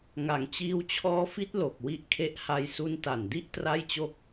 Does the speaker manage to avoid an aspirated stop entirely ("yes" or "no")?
no